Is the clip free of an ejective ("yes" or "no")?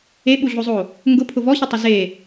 yes